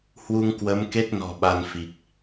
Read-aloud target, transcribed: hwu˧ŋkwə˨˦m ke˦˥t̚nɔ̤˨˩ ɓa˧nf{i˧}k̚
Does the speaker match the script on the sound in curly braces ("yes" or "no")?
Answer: no